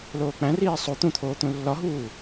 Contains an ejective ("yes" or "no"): no